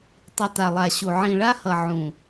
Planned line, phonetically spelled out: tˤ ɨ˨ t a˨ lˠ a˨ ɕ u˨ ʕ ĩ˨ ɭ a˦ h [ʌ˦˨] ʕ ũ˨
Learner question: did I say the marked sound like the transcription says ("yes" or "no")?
no